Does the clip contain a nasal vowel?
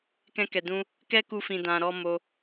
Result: yes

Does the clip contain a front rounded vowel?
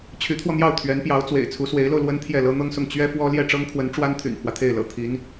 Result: yes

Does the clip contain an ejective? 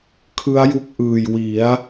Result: no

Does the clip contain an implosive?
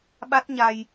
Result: yes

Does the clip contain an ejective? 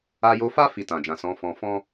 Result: no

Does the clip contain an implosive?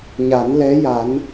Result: no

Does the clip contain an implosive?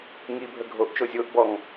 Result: no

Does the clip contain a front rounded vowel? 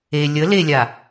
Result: no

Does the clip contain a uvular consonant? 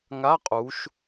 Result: yes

